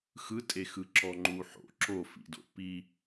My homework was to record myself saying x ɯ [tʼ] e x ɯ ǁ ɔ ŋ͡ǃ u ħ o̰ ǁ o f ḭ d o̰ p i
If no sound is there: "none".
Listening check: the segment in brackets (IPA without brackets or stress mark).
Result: tʼ